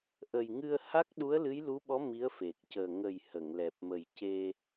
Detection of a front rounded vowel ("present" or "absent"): absent